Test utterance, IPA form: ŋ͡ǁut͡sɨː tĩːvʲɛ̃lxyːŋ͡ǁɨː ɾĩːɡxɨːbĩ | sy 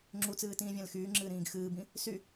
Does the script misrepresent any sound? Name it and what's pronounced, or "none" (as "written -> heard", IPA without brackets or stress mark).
none